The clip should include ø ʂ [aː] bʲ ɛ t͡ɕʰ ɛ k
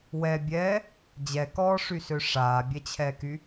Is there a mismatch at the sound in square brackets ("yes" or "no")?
no